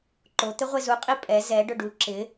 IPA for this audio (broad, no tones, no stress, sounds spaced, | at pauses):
ǃ o t̪ ɪ ʁʷ e z u qʼ i pʼ ɛ z ɛ ɖ ʊ ɖ u ǁ ɪ